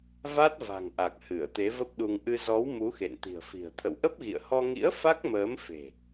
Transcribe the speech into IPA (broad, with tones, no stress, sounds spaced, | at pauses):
v a˦˥ t̚ v a̤˨˩ ŋ ʔ a˨˩ k̚ h ɨ˧˩ ə̯ t̪ e˨˦ v ə˦˥ p̚ ɗ u˧ ŋ ʔ ɨ˧ z ɔ˨˦ w m u˨˦ x ḛ˧˨ n t̪ i̤˨˩ ə̯ f i̤˨˩ ə̯ t̪ʰ ə̰˧˨ w ʔ ə˦˥ p̚ ɣ ḭ˧˨ ə̯ h ɔ˧ ŋ ḭ˧˥ ə̯ f a˦˥ k̚ m əː˨˦ m f e̤˨˩